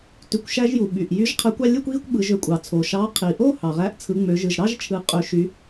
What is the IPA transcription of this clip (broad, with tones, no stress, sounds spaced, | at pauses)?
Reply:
t y˩˧ kʷ ʃ æ˧ ʒ j u˩ ɓ y˩ ʔ j y˨˥ ʒ qʰ æ˨˥ kʷ ɑ˧ lʲ ɯ˥˧ kʷ ɣ i˥˧ kʷ ɓ ɯ˩˧ ʒ ø˩˧ kʷʼ ɑ˩ t͡sʰ o˩ ʃ ɑ˨˥ qʰ i˩ ʔ o˥˧ h ɑ˩ ʁ æ˨˥ ʔ t͡sʰ ɯ˩˧ ŋ͡m ø˩˧ ʒ ɯ˩ ʒ ɾ ɑ˥˧ ʒ t͡ʃʰ ɯ˩˧ qʼ ø˩˧ ʃ y˩˧